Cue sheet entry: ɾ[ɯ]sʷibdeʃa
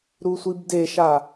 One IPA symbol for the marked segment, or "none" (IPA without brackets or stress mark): u